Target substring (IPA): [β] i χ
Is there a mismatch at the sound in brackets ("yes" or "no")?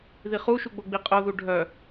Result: yes